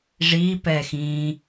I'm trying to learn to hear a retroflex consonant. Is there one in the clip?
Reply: yes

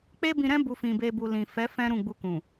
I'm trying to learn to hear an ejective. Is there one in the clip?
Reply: no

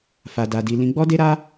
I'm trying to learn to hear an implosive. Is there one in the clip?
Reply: no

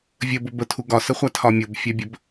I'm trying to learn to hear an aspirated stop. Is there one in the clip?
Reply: yes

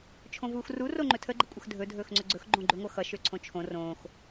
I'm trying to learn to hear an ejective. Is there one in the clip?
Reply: yes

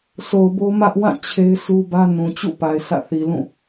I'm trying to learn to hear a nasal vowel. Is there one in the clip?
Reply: yes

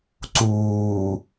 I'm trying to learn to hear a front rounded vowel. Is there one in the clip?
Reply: no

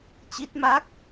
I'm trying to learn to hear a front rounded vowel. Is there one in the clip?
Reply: no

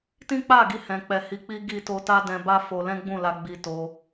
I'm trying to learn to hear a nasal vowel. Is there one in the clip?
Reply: yes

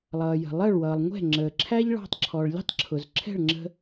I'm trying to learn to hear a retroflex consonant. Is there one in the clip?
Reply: yes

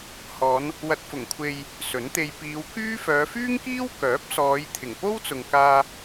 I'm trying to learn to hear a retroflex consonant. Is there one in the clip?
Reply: no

